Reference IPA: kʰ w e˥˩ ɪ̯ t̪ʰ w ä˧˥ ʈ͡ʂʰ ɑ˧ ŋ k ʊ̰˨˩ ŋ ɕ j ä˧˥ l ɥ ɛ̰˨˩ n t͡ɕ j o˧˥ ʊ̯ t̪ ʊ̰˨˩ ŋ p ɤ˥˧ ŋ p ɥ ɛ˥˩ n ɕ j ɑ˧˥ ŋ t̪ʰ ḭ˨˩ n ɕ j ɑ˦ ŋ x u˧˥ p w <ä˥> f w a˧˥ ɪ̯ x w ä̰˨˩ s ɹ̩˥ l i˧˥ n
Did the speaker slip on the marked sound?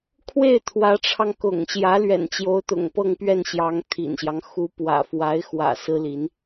yes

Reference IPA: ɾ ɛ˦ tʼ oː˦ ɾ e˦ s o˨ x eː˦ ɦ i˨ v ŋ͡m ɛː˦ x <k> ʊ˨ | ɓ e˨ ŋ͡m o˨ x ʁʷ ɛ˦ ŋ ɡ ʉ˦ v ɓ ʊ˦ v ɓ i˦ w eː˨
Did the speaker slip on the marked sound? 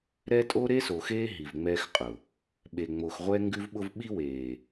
yes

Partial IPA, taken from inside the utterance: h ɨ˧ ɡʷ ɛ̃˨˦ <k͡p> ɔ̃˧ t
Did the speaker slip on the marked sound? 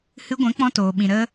no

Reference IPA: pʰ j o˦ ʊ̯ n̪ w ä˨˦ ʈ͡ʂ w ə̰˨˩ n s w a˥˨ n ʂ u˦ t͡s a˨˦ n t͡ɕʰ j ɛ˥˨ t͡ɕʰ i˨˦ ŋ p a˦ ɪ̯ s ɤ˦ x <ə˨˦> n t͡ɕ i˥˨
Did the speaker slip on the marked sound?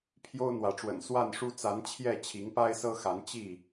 yes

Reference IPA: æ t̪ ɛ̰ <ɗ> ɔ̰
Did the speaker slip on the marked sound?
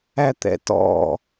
yes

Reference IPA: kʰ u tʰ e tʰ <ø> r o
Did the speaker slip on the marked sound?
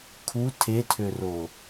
no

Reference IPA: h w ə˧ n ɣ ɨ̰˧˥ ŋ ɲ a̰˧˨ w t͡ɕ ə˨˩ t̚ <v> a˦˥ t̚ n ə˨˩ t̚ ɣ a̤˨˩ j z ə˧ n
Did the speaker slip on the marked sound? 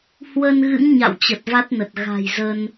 no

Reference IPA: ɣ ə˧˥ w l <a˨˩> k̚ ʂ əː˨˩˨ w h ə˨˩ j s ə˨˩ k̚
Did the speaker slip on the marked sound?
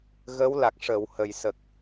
no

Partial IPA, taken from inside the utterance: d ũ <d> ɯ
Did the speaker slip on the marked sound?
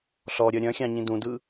no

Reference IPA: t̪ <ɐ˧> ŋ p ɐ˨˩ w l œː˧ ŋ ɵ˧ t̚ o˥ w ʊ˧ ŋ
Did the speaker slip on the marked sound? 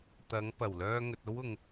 yes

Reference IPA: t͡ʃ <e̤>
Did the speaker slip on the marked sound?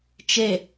yes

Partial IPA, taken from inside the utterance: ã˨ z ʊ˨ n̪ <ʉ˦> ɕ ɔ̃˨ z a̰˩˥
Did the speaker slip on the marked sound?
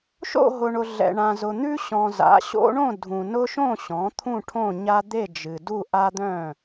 no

